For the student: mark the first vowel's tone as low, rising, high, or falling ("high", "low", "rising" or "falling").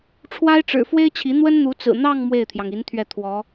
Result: high